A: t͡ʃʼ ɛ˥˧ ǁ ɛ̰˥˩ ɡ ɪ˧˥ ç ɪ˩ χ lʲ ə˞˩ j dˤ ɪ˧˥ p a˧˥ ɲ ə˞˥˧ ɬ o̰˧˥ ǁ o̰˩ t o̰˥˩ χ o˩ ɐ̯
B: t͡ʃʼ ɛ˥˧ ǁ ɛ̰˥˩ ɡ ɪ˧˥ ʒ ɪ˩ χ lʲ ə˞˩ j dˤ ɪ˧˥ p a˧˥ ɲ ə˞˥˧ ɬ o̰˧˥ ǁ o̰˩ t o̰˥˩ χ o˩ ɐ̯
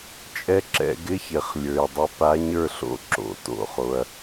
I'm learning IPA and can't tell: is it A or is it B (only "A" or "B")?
A